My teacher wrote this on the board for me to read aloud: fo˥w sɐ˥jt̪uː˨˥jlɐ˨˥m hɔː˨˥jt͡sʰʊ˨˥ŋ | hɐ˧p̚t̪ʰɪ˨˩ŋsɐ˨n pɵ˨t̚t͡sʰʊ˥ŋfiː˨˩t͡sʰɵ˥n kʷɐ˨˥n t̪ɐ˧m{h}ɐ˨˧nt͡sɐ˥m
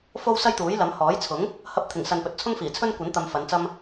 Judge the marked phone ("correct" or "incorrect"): incorrect